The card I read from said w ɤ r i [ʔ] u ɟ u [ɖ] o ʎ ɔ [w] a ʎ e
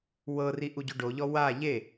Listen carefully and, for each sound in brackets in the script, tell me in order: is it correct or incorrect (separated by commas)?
correct, correct, correct